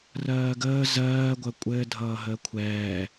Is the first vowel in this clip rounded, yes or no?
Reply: no